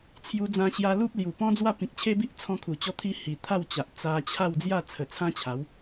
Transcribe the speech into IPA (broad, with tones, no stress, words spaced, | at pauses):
t͡sʰju˧d͡zã˧ɕja˧ lu˦p̚ lju˨˩pɔ̃˦d͡zwa˥˧ pĩ˨k̚t͡ɕʰe˦bi˦ʔ t͡sʰɔ̃˧kʰu˨˩t͡ɕɔ˧t̪ʰi˧ hi˨˩ t̪ʰa˥˧wt͡ɕa˨ʔ t͡sa˧t͡ɕʰa˥˧w d͡zja˥˧t͡sʰə˨˩t͡sʰã˦t͡ɕʰa˨˦w